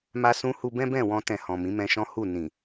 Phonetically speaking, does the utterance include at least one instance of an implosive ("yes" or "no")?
no